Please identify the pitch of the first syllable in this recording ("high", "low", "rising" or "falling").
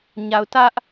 low